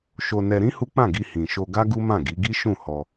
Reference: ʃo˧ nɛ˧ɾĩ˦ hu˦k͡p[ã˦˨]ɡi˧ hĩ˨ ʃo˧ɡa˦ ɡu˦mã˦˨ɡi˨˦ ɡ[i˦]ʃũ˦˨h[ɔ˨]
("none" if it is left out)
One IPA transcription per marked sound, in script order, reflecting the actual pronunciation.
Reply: ã˦˨, i˦, ɔ˧

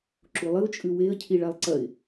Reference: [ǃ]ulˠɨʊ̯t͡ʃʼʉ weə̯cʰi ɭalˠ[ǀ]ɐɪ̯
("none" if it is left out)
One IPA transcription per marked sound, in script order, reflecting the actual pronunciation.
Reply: ǁ, ǀ

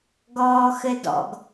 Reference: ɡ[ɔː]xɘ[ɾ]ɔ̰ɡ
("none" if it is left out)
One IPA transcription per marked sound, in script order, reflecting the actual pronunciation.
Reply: ɔː, d

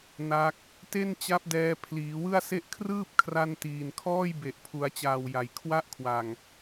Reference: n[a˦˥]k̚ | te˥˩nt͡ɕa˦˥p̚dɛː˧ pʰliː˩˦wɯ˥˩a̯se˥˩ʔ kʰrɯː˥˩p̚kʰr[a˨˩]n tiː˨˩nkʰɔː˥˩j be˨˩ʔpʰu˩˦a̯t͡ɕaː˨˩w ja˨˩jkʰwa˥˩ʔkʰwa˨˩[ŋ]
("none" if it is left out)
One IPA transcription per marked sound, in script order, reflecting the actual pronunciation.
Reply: a˦˥, a˧, ŋ

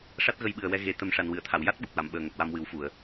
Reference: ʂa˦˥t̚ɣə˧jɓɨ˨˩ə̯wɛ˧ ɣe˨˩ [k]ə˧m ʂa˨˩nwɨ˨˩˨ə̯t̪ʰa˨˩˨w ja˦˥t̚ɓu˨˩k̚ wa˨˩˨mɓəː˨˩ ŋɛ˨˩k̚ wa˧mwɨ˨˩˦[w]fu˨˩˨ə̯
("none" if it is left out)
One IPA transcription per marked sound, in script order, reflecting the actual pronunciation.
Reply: t̪, w

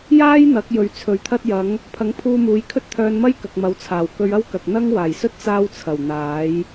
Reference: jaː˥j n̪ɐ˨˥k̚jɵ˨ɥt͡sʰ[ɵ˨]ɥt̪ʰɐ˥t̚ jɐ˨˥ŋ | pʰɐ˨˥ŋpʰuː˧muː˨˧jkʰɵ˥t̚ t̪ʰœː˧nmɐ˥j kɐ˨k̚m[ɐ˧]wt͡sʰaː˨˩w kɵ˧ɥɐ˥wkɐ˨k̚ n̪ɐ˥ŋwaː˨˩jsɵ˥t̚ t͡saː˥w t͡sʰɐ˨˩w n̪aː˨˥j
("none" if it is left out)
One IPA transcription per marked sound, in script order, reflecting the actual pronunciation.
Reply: ɵ˨, ɐ˨˥

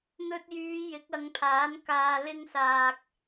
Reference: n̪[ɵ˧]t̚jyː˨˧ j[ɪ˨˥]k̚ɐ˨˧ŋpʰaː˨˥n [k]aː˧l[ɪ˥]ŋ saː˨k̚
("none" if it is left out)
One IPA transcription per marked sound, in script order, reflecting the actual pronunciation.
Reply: ɵ˧, ɪ˨˥, k, ɪ˥

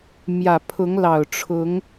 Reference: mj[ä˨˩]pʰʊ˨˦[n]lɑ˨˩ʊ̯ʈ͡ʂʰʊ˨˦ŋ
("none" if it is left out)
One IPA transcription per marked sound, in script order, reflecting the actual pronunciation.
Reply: ä˨˩, ŋ

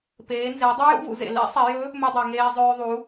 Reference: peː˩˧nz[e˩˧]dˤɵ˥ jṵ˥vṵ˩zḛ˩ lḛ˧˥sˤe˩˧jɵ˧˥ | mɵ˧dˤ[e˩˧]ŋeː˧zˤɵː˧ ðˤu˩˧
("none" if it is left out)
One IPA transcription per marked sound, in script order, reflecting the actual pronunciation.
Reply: e˩˧, e˩

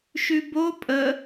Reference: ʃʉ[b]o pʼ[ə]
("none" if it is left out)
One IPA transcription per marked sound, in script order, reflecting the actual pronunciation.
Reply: b, ə

